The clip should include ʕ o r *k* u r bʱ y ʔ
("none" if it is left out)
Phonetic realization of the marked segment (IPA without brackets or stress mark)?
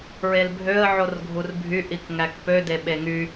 ɡʱ